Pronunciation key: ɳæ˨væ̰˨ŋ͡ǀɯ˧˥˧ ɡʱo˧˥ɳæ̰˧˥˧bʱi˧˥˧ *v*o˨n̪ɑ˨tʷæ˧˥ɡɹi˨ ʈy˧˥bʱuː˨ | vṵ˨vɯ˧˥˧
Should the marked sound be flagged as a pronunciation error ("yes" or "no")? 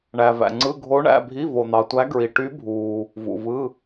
no